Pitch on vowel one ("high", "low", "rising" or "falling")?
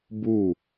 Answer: falling